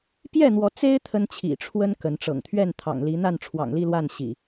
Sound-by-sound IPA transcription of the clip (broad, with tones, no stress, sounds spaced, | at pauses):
p j ɛ˥˨ n̪ w ɔ˨˦ t͡s e˦ ɪ̯ t̪ʰ ə˦ n t͡ɕʰ ḭ˨˩ ʈ͡ʂʰ w ə˦ n k ə˨˦ n ʈ͡ʂ ɤ̰˨˩ ŋ t̪ʰ ɥ ɛ˥˨ n t̪ʰ ɑ̰˨˩ ŋ l i˨˦ n̪ a˥˨ n ʈ͡ʂʰ w ɑ̰˨˩ ŋ l i˥˨ l w a˥˨ n ɕ ḭ˨˩